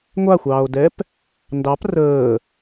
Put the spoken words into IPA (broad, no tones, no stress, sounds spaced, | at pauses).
ŋʷ a xʷ ɑː o̯ d ɛ p | n d ɑ p r əː